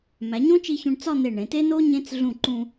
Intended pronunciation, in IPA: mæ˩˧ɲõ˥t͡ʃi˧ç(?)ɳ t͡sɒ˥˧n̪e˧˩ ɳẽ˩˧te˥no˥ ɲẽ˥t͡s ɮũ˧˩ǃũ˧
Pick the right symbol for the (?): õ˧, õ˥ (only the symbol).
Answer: õ˧